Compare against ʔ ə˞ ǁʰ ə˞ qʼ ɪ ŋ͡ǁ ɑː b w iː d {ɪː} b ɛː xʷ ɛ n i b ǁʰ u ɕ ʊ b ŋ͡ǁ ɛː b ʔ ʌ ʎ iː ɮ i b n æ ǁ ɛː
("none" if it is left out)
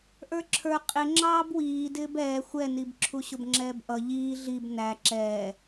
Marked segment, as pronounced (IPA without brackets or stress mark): ɪː